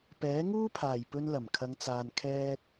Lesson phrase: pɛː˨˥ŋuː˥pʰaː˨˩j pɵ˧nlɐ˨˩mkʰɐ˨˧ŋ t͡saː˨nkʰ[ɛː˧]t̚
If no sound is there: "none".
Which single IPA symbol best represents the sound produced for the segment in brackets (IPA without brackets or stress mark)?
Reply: ɛː˧